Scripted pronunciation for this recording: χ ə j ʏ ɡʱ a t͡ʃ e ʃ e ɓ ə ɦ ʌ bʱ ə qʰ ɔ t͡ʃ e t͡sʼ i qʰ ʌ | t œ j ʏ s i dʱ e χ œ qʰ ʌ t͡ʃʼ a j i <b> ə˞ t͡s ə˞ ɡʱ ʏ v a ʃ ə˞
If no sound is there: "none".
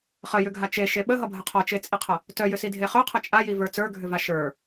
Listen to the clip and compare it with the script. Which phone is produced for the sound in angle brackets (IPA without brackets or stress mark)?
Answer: v